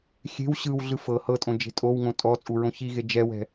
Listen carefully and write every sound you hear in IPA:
xʲe̤w ɕɯwɮɯ fɤ hɤtʼõd͡ʒe̤ tʼowŋõ tʼɔt͡sʼuɹõ çiɣe d͡ʒɛwɛ̤

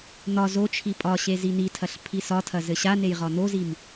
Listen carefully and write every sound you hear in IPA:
n̪ɒ zot͡ʃʰi pʼɒɕe zin̪itʰɐɬ pʰisɒtʰɐ zɘɕanej ʁɒn̪ozim

